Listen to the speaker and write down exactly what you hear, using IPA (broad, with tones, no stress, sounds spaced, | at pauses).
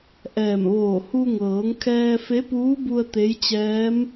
ʔ ɛː˧˩ m ʋ oː˧˩ h u˧ ŋ ɤː˩˧ ŋ kʰ ɛː˧ f e˧˥ p uː˧˥ b u˧ ə̯ t̪ e˧˥ j t͡ɕ ɛː˧˥ m